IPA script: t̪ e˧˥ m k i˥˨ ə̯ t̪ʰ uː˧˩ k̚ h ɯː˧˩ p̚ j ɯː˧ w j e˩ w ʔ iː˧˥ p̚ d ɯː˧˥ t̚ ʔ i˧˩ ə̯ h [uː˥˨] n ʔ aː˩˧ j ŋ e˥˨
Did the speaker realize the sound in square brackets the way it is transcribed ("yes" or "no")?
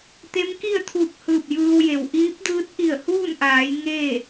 yes